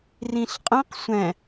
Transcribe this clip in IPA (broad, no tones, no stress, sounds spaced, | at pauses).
r ĩ ɬ qʼ ɛ̃ q sʷ ɛ̃